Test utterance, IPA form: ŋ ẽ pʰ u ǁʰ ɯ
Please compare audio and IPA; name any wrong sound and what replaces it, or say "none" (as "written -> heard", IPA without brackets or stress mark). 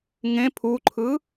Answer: ǁʰ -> ǃʰ